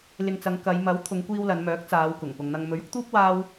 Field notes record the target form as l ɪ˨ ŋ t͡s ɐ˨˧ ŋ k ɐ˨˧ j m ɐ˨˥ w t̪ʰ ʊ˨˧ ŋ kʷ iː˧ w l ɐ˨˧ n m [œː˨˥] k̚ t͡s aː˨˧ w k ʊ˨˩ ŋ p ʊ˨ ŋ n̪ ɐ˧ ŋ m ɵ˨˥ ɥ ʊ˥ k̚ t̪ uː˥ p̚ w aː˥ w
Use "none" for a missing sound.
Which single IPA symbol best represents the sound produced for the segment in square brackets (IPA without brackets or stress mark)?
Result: œː˨˥